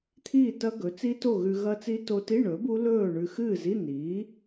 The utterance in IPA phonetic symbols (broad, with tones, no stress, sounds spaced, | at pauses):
t̪ʰ iː˥˨ t ɐ˦˥ ɡ ɵ˩˥ t͡s i˦˥ t o˥˨ ɣ ʉ˧ ɣ ɐ˦˥ t͡s i˦˥ t o˧ t i˧˥˧ ɳ ɵ˩˥ b u˦˥ l ɵː˥˨ ɳ ʉ˧ x ɨː˥˨ z i˧˥˧ n iː˩˥